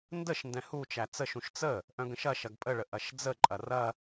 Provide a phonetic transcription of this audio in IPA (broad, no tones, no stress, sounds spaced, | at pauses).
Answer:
n d ə ʃ n d ɛ̃ h u t͡ʃ æ t͡s ə ʃ ũ ʃ t͡s ə | ʔ œ̃ ɡ ə̃ ʃ ɐ ʃ ɐ ɡ pʼ ə ɭ ə ʔ ɐ ʃ d͡z ə ǃʼ ɐ r ɐ